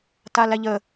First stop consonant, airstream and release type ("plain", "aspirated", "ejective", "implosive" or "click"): plain